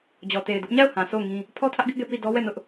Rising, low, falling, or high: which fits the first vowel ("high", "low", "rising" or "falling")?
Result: low